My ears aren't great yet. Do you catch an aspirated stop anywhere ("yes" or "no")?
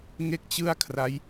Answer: yes